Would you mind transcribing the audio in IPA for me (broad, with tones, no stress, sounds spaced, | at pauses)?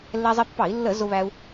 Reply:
lː ɛ˧ zˤ i˧ pː ɑ˧˩˧ i̯ lː ə˧˩˧ z ʊ˧ β æ˧ u̯